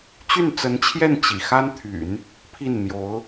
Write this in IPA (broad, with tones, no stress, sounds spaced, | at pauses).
t͡ɕ y˥˩ n t͡s ə˧˥ n t͡ɕʰ j ɛ˥˩ n t͡ɕ ḭ˨˩ x a˥ n t̪ʰ y̰˨˩˦ n | pʰ i˥˩ n n̪ j o˧˥ ʊ̯